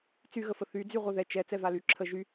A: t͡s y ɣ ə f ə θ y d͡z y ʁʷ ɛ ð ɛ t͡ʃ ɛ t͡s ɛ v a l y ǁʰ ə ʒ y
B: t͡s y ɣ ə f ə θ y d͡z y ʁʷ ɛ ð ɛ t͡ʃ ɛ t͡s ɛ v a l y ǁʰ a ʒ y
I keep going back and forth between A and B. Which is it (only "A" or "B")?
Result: A